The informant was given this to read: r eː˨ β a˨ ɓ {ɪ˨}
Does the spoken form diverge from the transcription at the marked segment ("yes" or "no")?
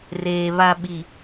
yes